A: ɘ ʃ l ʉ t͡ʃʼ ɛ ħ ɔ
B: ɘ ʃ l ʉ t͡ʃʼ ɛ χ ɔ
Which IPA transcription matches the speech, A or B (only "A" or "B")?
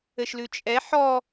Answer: A